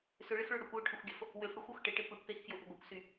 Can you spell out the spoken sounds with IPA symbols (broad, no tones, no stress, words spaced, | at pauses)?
sʏɭɪxɭʊ ɽʏkʷwʊʈʰʏxʷɡʲɐf | wʏfɽuxʷux ʈɪʈɪ puʈpexfjʊʔʏ ɡʷɪkʷsy